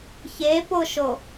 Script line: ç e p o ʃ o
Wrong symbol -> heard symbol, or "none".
none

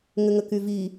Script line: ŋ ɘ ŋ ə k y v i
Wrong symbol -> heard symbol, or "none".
none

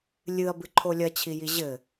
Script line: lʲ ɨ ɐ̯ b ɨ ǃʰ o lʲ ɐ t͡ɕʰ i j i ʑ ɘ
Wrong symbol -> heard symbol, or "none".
none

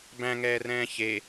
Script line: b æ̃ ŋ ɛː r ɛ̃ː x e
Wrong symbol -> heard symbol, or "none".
x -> ç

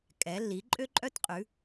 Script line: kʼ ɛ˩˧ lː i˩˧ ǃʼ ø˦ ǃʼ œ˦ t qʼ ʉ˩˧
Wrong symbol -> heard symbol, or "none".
none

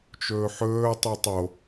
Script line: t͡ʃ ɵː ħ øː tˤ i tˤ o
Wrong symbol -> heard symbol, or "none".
øː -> ɵː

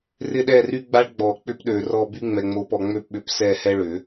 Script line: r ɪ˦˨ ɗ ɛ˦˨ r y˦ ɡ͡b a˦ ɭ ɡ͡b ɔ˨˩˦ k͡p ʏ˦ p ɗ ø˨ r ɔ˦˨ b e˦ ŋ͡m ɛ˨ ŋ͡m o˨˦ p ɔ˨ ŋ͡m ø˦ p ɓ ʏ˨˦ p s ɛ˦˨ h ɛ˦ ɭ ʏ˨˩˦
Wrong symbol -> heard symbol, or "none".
e˦ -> y˦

